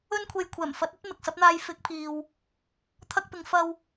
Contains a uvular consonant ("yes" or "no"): no